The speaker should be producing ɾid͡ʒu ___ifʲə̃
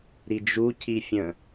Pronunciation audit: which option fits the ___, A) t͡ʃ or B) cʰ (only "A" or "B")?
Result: B